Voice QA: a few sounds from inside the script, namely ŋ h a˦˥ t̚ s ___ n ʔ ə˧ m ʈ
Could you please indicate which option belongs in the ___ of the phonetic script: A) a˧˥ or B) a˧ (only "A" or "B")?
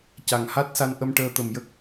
B